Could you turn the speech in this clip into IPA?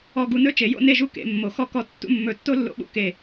ɔ˧ ɡ u˧ n ɵ˥ t͡ʃ e˩˧ j o̰˥˧ n e˥˧ ʒ u˥˧ k ḛ˩˧ mː o˩˧ x ɔ˧ k ɔ˧ tː ṵ˥˧ mː ɵ˧˩ tː o˥ lː o̰˧ ɓ ṵ˧˩ k e˧˩

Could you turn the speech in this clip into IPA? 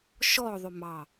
ʃ ɔ ðˤ ʏ m ɑ

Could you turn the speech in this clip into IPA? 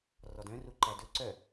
r ɔ d œ̃ r u ǃ æ d ɵ ǀ œ

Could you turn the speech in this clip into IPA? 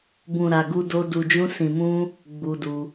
b ũ˨ ɾ a˨ ɡ u˧ d o˧ d u˨ d͡ʒ ũ˧ s ĩ˨ m ũ˧ | ɡ͡b u˧ d u˧

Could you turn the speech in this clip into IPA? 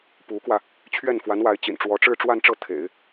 p u˧˥ k w ä˧ | t͡ɕʰ ɥ ɛ˥˩ n f w a˧˥ n w a˧˥ ɪ̯ t͡ɕ ḭ˨˩ n ʈ͡ʂ w ɔ˧˥ ʈ͡ʂ ɻ̩˥˧ ʈ͡ʂ w a˥˧ n ʈ͡ʂ ɤ˥˩ t̪ʰ ḛ˨˩˦ ɪ̯

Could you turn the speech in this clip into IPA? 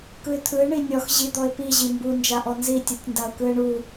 k ɯ ɪ̯ t̪ʰ ɯ ɪ̯ ɳ i nʲ ɔ x ʑ i d̪ ɔ ɪ̯ p i ʑ i m b u n d͡ʒ a ʔ ɔ n z i tʲ ɯ tʲ n d a ʊ̯ k ɯ ɪ̯ ɳ u

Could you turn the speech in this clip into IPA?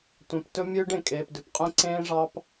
tʷ œ̃˨ p t ɵ˦ mʲ ɵː˦ ɖ ẽ˨ kʼ eː˨ p d ʉ˨ p qʼ ẽ˦ ǀ ẽː˦ ʐ ɑ˦ p

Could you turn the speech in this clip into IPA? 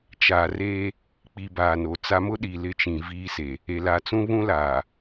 t͡ʃ aː˨ r eː˦ | k͡p i˨ b aː˨ n o˨ t͡s a˦ m ʊ˦ ɗ i˨ l ɪ˦ t͡ʃ ĩ˨ v i˦ s e˨ | e˨ l a˨ t͡s ũ˦ β ũ˦ l aː˨

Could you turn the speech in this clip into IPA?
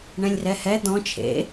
ɳ ɛ̃ lʲ r ɛ h ɛ d̪ ɔ̃ t͡ʃʰ ḛ

